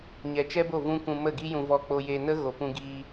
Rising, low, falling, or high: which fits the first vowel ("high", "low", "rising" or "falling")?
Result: low